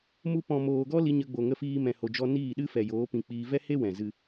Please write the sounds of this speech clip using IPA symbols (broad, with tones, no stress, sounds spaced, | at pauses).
m u˧ p ɔ̃˨ m oː˨ ɡ ɔ˦ l i˧ ɲ ə˧ ɡ͡b o˨ ŋ ə˧ f iː˧ m ɛ̃˨ h o˨ d͡ʒ ɔ˧ n iː˦˨ ɗ ɨ˦ f ɛ˨ j oː˨˦ p ĩ˧ k͡p iː˧ v ɛ˦ h e˦ w ɛ̃˨ z ɨ˦